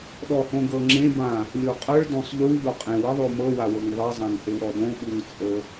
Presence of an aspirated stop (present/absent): absent